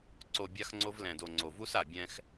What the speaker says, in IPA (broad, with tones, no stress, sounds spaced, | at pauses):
ǀ o˨ bʲ a˧ x ŋ͡ǀ o˧ v l ɛ̃˨ d o˨ ŋ͡ǀ o˨ v u˦ s a˨ bʲ ɛ̃˧ x